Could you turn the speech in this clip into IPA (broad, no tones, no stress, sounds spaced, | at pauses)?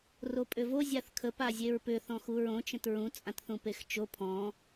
r o pʼ ʏ v o zʲ a θ kʰ ə p a zʲ e ɹ p ʏ θ ɔ̃ x u ɹ õ t͡ʃ ə̃ t ɹ ũ t͡sʼ ã t θ ũ p e x t͡ʃ o pʰ ɔ̃